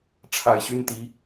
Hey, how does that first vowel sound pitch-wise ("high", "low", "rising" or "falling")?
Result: low